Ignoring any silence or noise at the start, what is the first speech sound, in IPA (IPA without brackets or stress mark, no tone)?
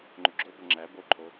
ŋ͡ǃ